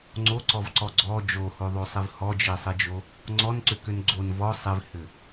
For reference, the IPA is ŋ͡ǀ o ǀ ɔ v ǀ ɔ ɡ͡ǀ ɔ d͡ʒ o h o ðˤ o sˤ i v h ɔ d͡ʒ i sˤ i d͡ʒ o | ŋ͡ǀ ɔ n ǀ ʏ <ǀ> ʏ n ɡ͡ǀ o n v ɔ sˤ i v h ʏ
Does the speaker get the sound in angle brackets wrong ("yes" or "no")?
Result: yes